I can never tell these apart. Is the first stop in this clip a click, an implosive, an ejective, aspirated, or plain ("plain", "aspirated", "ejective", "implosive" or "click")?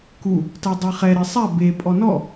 plain